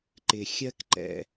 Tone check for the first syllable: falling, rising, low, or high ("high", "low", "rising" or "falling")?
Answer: low